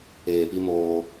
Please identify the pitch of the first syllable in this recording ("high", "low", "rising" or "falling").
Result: low